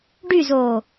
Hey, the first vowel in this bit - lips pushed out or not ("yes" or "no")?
yes